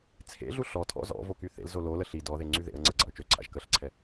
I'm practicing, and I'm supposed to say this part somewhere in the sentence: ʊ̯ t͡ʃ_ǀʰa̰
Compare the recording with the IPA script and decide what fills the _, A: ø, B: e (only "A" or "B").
A